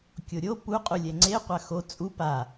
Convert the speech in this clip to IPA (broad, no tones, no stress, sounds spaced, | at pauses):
kʲ o ɾʲ o p u qʼ u lʲ ɛ ŋ͡ǀ e qʷ a x o t͡sʼ u p a